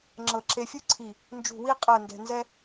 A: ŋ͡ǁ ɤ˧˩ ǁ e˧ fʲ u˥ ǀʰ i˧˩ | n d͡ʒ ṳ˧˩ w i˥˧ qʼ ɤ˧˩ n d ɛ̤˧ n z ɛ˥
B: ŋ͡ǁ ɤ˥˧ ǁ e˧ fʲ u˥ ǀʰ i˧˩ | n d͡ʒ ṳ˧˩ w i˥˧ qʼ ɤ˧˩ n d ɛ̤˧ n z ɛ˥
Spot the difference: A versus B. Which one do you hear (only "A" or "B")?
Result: A